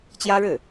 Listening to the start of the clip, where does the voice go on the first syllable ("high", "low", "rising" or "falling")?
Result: high